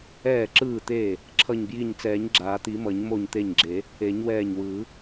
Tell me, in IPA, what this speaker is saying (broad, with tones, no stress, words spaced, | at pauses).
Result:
ɛː˧˩ǁɯː˧˩t̪eː˧˩ | ǁʰʌ˧˩ɲbji˧˩ɲt͡sɛː˨˩˦ɲ ɡ͡ǁaː˨˩˦t̪i˨˩˦mʌ˨˩˦ɲ mo˧˩ɲt̪e˧˩ɲɡ͡ǁe˨˩˦ | e˨˩˦ɲwɛː˧˩ɲwɯː˨˩˦